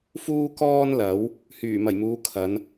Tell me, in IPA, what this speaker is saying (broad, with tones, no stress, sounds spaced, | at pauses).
f uː˧ k ɔː˧ n l ɐ˨˥ w | h yː˨˩ m ɐ˨˩ j m uː˨˧ kʰ ɐ˨˧ n